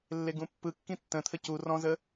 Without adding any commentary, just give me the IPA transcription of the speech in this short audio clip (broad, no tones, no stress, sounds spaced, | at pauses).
lː e ɡ ũ pː ɯ kː ĩ tː ə̃ t̪ʰ ə c u r ɔ̃ z ə